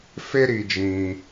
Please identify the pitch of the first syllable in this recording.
high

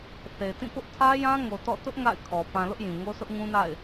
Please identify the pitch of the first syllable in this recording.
low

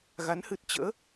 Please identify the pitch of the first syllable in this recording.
rising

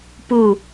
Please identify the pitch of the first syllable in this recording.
falling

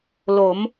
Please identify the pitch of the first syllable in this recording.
rising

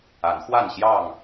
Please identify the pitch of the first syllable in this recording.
rising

